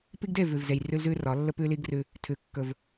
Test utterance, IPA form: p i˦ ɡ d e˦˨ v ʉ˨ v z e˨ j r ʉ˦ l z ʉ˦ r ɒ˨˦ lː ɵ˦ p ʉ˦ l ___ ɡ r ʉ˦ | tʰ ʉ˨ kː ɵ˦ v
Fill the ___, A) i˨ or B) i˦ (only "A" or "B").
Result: B